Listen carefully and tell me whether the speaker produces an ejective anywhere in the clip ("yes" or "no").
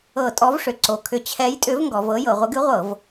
yes